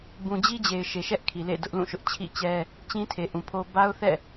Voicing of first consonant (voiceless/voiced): voiced